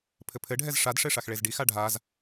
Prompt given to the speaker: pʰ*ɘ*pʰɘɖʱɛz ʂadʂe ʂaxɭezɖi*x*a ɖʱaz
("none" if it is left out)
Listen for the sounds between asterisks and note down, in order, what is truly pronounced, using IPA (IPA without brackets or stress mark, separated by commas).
ɘ, x